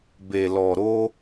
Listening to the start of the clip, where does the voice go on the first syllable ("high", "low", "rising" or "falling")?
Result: low